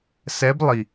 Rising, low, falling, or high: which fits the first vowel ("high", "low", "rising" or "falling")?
rising